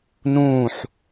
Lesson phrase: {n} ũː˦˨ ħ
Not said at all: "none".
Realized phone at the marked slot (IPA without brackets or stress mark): n